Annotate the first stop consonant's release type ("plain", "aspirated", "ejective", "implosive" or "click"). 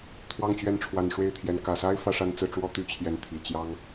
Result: aspirated